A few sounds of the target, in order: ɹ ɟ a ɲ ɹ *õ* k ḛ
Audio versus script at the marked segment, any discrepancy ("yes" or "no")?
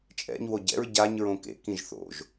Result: no